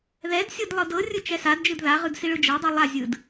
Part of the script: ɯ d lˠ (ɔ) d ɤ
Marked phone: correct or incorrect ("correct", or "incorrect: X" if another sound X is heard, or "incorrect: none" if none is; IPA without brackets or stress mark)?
incorrect: ɤ